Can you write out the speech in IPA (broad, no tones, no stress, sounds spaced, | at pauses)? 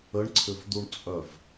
ə ɳ ǀʰ ʏ v d̪ u ɳ t͡sʼ œ v